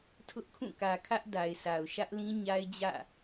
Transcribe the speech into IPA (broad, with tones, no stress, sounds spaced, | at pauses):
tʰ ʊ˦ ʔ kʰ ũ˦˨ k ä˨ kʰ ä˦ ʔ d a˨ ɪ̯ s a˨ ʊ̯ ʃ ä˦ ʔ l ĩ˦ ɲ a˦ ɪ̯ d͡ʑ ä̰˦˨